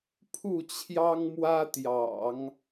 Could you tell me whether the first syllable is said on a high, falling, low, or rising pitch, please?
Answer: falling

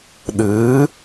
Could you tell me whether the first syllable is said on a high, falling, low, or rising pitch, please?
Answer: rising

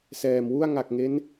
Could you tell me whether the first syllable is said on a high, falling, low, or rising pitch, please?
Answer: low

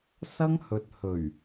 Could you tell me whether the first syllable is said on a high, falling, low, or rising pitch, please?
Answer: high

